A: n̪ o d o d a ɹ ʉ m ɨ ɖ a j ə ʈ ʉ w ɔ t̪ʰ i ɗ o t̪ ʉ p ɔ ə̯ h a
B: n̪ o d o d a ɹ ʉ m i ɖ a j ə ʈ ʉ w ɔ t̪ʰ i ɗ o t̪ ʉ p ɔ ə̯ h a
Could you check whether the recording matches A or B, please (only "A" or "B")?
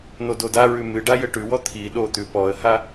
A